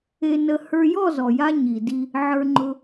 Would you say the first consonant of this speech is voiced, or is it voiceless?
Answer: voiced